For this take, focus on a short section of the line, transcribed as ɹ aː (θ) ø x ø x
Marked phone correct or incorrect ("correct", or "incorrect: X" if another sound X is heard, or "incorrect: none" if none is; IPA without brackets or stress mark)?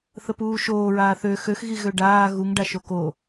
correct